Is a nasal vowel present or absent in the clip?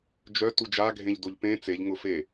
present